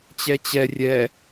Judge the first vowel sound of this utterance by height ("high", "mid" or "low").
mid